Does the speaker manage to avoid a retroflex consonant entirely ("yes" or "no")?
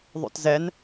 yes